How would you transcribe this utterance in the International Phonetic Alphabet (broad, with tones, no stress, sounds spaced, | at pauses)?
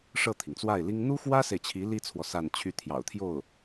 ʂ ɤ˥˩ t̪ʰ i˩ ŋ t͡s w a˥˩ ɪ̯ l i˥ ŋ n̪ u˥ x w ä˥ s e˨ ɪ̯ t͡ɕʰ i˧˥ l i˥ t͡sʰ w ɔ˨ s a˥˧ n t͡ɕʰ y˥˩ t̪ʰ j ɑ̰˨˩ ʊ̯ t̪ʰ j o˥˩ ʊ̯